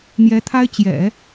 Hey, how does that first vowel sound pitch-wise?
rising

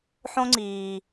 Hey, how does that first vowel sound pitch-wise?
high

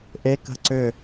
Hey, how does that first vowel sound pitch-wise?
rising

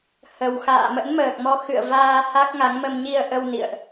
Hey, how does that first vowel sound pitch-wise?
low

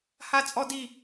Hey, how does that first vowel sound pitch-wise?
high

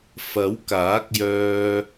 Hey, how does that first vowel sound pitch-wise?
rising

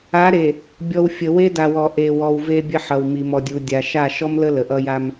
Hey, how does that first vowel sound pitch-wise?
rising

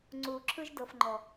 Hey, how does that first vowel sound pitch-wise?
low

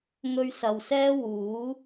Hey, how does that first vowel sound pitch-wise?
high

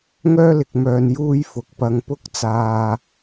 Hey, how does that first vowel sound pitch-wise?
high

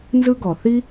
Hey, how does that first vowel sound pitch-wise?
high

